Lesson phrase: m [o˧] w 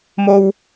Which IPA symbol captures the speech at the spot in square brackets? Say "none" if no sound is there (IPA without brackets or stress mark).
o˧